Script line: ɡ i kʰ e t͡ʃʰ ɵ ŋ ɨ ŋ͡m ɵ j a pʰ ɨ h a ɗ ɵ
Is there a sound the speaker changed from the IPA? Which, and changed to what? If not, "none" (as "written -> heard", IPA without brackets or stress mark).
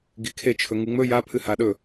none